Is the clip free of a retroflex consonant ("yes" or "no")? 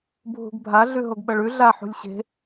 no